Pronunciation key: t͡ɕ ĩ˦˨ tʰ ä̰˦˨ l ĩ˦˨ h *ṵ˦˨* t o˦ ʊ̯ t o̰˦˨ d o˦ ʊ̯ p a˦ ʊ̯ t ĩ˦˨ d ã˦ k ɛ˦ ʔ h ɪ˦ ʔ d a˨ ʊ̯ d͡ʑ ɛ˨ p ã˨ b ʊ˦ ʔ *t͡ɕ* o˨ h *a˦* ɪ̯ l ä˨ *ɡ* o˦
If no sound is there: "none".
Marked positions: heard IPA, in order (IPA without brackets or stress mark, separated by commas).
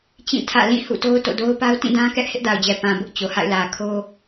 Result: ṵ˦˨, t͡ɕ, a̰˦˨, kʰ